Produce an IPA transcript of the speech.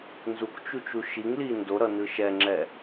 nzukt͡ʃut͡ʃu ʃiŋli ndoɾʌnɯ ʃɛŋ͡ǁɛ

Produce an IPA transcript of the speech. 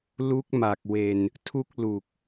lu˦˥k̚ma˨˩k̚we˧n | tʰu˥˩k̚lu˨˩k̚

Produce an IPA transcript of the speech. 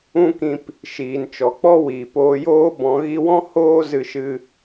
ũ˦kĩ˧p | ʃiː˨nt͡ʃɔ˨k͡pɔ˦ wiː˨p oː˧joː˦bɔ̃˨˦ ɣi˧wɔ̃˦ hoː˦ zɨ˧ʃɨ˧

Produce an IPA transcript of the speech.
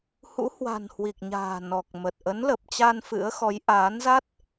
hṵ˧˥hwa̤˨˩nhwi˨˩k̚ ɲa̤ː˨˩nɔ˨˩k̚ mə˨˩t̚ ʔə˨˦nlə˨˩p̚t͡ɕa˧n fɨ̰˧˥ə̯xɔ˨˦j ʔaː˨˦nza˦˥t̚

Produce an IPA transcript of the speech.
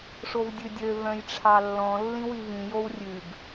ʂovdʲʉdʲø vœ̃jʈ͡ʂʰɑlːɔ̃ lːĩwivĩ jowrʲʉɡ

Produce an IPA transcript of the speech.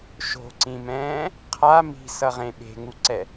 ʃo̤ǀĩmɛ̃ː | qʰa mi̤sʌʁẽ ɓe̤ŋuǀɛ

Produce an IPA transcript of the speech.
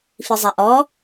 fizˤaʔɔ

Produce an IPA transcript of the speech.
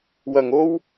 wɐ˨˩ŋo˥w

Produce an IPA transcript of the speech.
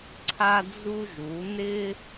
ǀʰa˧d͡zu˧ʒu˩˧ nɪ˧

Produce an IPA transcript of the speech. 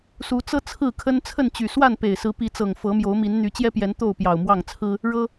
su˨˦t͡sɤ˦ t͡sʰɹ̩˥˨kʰə˦n t͡sʰə˥˨nt͡ɕy˨˩swa˥˨n pe˨˩ɪ̯sɹ̩˨˦pi˨˦t͡sɤ˨˩ŋ fɤ˨˦mjo˨˦ʊ̯mi˨˦nn̪y˨˦ t͡ɕjɛ˦pjɛ˨˦n t̪o˥˨ʊ̯pjɑ˨˩ʊ̯mwɑ˥˨ŋt͡sʰɹ̩˦ | ɻɤ˦

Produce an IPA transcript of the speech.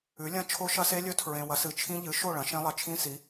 ʉ˩˥lʲɐ̃˦˥ t͡ʃʰo˦˥ʃɐ˦˥se˦˥lʲɵ˦˥ tʰɹẽ˨wɐ˩˥sɨ˩˥t͡ʃʰĩ˦˥ ʎɨ˩˥ ʃo˥˩ ɭɐ̃˩˥ʃẽ˦˥lˠɐ˨ t͡ʃʰĩ˦˥si˩˥

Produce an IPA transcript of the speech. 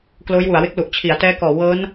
kloː˦˥jwu˩˦a̯we˦˥k̚ lu˨˩ʔ t͡ɕʰi˩˦a̯tɛː˦˥kɔː˨˩ wɤː˦˥n

